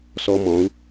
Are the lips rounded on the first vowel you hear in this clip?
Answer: yes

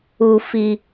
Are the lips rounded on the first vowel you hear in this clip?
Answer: yes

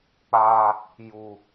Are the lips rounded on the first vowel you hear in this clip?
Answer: no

